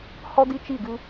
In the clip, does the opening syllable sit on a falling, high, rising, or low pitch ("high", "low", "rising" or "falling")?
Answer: high